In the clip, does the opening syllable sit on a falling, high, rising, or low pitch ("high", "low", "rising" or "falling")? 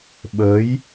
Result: rising